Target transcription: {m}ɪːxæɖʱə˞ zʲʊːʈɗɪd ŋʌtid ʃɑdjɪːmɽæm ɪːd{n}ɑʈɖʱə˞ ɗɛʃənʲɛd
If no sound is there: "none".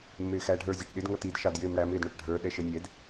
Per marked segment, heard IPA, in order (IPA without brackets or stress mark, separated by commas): mː, ɳ